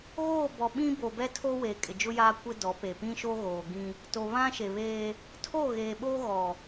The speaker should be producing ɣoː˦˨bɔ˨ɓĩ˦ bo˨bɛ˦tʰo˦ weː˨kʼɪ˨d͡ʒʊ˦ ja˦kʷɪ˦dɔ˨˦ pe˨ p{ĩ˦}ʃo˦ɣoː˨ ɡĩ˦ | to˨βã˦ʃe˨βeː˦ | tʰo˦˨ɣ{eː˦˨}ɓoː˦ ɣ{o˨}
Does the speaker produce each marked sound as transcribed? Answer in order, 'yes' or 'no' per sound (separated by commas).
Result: yes, no, no